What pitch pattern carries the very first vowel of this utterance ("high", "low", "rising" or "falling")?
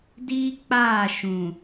high